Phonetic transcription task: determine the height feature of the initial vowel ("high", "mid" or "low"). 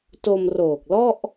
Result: mid